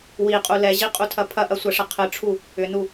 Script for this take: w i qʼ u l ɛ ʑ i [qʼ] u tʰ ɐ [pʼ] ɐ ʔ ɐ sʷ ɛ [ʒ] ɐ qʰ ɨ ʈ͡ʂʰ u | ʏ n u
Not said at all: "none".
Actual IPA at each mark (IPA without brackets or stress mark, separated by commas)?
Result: qʼ, pʰ, ʂ